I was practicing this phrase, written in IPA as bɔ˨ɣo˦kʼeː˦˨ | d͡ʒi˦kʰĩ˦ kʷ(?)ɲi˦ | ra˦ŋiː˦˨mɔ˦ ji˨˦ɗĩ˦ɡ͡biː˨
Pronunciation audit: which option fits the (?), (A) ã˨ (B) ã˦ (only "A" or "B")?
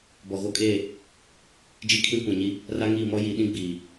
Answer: A